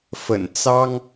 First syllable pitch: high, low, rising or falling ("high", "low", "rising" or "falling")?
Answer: low